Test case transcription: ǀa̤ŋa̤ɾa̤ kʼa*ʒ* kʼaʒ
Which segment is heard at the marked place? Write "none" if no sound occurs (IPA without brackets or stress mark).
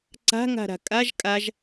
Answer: ʒ